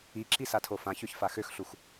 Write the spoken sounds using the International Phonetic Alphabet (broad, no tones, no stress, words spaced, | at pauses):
iǁisatʰo fãçøçfa xøxɬux